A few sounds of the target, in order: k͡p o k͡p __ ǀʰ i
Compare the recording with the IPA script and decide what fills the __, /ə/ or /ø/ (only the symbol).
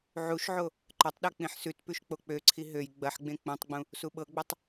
ø